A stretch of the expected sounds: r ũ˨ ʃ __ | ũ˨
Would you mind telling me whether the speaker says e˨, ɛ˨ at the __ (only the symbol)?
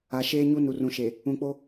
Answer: e˨